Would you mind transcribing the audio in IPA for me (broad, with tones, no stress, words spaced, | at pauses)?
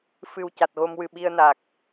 fɨ˨˩w ca˨˩t̚ɣo˧mwɨ˨˩ ɓi˧ə̯na˨˩k̚